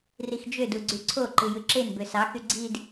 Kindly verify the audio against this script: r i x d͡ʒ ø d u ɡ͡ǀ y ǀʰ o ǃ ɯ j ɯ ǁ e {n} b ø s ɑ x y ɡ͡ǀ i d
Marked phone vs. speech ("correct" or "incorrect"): correct